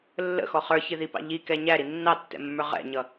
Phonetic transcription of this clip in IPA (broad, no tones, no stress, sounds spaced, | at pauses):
lː ə̰ x ɔ χ ə˞ ç ɪ ð i p ɑ̰ ʎ i k ɛ ɲ æ ɾ i nː ɑ tː ɛ̰ mː ə˞ ʁ ɛ̰ ɲ ʌ